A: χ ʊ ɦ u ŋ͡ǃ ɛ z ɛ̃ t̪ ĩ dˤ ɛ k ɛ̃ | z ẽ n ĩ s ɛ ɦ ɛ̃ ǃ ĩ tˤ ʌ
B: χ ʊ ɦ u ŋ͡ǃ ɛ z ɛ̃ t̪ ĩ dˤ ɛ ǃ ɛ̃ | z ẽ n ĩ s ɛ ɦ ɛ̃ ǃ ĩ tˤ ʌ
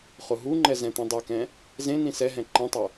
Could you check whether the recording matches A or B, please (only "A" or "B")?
A